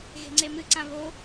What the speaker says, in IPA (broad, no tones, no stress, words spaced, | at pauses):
ɣe̤ŋ͡ǀemɨǀã βo